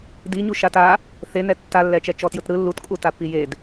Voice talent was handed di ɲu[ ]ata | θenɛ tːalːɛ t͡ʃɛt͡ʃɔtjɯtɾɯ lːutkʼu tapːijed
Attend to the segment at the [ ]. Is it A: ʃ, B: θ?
A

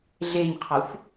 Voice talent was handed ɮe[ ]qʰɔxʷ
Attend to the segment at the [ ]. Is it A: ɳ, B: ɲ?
B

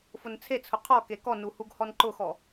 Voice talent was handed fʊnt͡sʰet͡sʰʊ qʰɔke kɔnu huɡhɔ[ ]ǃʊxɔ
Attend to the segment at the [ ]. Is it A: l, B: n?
B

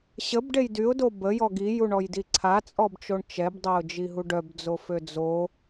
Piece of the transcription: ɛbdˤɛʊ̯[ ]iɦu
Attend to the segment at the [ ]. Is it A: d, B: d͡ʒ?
B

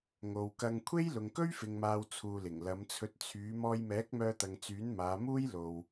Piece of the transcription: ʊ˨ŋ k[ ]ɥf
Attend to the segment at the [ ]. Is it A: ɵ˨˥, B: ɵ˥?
B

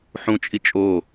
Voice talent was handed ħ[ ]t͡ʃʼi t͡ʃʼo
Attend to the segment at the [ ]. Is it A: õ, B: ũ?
B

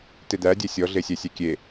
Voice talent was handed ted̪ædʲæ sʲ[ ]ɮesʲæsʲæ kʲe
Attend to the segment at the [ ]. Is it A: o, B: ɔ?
B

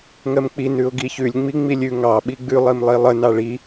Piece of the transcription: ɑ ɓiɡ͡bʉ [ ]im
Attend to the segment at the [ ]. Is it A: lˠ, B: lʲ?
A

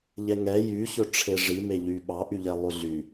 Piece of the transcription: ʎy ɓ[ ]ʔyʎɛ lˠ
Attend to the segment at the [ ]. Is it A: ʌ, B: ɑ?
B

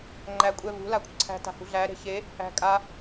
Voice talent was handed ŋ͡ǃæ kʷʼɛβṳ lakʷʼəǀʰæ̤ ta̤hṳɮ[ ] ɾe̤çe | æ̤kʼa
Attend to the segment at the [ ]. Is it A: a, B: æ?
B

